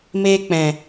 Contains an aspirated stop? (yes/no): no